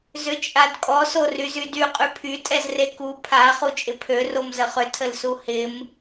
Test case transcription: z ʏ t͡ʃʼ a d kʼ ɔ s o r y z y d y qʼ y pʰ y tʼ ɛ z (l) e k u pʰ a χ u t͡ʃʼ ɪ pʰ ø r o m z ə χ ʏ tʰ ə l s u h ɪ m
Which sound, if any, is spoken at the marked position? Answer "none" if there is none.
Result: r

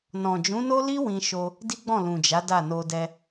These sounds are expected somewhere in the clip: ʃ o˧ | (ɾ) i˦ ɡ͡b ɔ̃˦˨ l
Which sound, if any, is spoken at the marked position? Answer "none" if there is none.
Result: d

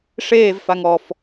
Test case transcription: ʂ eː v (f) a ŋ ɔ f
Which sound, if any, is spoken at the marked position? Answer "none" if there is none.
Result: f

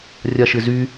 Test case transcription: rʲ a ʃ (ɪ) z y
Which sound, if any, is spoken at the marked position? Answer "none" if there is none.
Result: ɪ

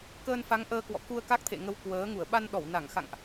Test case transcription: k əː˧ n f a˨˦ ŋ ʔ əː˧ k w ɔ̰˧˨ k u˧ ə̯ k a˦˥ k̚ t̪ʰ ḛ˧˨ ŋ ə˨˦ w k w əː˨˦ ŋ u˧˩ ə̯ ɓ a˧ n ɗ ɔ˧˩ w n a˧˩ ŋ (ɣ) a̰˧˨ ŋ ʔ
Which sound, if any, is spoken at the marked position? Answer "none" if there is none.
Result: x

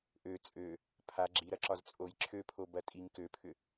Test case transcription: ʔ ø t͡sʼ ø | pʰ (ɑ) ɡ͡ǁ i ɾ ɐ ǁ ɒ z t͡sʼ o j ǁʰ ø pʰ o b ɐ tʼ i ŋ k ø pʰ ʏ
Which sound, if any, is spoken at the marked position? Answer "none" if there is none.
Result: a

